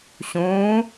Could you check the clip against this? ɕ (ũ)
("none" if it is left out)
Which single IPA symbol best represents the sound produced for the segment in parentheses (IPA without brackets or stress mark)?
ũː